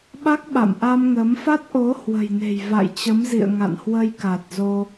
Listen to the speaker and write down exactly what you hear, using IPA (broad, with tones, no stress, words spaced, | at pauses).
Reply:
ɓa˦˥k̚ɓa̰˧˨mʔa˧mŋə˨˦m fa˦˥t̚ʔo˨˦ hwə̤˨˩jne̤˨˩j va̰˧˨jt͡ɕə˨˦mzḭ˧˨ə̯ ŋa̰˧˨nhwə˧jka˨˩t̚ zo˧